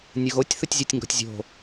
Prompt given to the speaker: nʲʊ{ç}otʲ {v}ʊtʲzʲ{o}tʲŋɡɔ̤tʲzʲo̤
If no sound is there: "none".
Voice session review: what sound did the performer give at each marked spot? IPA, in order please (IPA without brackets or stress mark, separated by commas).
ɣ, θ, ɔ